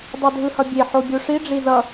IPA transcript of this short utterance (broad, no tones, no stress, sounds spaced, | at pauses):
dˤ o dʱ ɯ h ʌ bʲ e ħ o bʲ o ʂ i ɖ͡ʐ i z ʌ